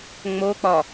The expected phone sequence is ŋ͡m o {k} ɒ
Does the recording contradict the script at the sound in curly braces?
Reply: yes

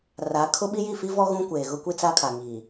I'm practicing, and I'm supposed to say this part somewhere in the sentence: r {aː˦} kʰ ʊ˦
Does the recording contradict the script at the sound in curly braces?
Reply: yes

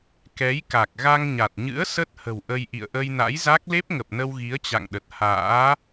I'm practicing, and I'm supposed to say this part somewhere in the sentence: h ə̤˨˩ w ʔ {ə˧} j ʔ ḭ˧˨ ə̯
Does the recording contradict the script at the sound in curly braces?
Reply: no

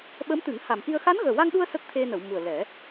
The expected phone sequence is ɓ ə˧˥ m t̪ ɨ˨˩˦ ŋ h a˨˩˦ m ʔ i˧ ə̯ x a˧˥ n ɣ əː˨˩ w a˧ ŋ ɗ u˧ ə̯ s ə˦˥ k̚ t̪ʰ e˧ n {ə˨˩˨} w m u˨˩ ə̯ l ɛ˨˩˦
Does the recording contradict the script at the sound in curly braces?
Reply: no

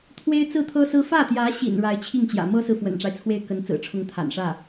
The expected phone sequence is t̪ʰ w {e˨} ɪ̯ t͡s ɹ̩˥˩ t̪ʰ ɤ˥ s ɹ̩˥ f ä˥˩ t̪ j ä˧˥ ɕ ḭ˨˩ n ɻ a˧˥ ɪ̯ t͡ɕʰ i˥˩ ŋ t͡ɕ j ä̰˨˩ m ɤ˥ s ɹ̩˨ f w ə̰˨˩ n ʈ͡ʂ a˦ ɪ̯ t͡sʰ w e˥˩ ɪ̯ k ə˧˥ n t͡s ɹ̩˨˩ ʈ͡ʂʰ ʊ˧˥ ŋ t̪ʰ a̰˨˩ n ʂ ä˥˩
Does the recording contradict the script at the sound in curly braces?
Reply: yes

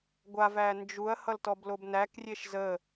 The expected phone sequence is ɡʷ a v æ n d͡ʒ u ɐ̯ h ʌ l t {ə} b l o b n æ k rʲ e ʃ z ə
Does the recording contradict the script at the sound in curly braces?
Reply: yes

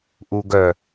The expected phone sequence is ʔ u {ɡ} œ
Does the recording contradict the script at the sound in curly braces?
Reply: no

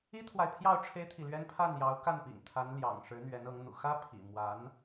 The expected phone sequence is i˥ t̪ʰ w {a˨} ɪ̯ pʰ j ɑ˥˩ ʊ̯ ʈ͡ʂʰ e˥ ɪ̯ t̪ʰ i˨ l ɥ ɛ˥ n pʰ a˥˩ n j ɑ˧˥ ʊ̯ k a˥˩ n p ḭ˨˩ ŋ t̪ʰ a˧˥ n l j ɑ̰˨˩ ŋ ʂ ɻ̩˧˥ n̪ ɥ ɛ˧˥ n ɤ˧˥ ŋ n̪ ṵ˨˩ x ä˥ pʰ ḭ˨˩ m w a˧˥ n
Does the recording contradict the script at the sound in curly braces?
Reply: no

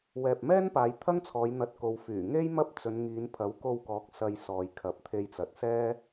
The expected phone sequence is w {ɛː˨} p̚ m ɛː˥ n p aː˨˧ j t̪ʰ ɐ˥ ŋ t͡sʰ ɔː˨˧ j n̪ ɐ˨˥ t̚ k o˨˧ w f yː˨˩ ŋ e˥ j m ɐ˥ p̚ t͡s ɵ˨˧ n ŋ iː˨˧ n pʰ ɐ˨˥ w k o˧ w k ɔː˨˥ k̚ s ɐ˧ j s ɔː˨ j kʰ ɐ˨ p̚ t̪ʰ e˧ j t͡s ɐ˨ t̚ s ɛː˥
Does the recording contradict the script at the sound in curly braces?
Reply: no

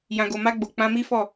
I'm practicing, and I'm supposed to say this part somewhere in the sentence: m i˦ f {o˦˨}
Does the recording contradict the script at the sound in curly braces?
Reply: yes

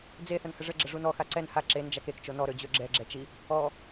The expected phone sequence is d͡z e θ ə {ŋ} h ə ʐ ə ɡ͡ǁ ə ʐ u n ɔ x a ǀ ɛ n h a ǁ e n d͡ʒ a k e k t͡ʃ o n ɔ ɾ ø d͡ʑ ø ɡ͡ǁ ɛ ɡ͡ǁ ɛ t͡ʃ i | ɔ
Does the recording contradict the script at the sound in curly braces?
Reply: yes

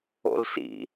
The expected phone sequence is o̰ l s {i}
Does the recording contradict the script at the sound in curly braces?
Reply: yes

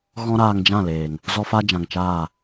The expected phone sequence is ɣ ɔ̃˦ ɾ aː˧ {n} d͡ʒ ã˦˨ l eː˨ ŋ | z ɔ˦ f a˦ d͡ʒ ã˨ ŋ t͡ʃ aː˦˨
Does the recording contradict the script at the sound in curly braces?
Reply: yes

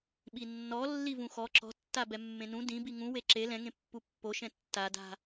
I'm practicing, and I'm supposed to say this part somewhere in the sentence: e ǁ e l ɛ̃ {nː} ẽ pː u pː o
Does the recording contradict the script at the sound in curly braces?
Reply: yes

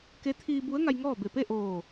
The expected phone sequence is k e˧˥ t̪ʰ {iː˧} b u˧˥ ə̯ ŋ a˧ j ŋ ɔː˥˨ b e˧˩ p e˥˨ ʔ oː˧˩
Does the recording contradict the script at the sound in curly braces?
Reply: no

